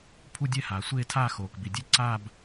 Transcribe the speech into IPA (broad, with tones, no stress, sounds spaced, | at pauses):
pʰ u˥˧ dʲ ɛ˥˧ h aː˩ sʷ eː˥˧ tʰ aː˥˧ x oː˩ k b i˩ dʲ e˥˧ ǀ aː˥˧ b